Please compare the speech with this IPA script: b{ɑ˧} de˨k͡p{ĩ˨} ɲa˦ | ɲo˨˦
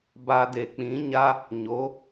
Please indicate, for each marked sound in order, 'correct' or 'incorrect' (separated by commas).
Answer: incorrect, incorrect